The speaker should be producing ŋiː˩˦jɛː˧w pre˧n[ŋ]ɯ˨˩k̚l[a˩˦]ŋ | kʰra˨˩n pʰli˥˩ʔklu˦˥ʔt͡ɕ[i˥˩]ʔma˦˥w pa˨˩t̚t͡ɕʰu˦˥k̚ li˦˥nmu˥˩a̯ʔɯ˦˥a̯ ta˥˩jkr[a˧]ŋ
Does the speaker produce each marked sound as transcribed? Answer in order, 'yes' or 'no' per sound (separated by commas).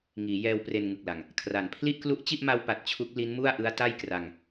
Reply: yes, no, yes, yes